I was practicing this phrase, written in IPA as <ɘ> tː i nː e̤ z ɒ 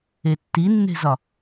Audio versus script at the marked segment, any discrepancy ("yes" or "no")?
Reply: yes